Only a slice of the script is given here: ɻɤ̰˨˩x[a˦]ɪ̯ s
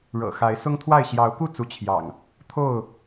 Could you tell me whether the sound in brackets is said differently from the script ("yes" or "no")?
yes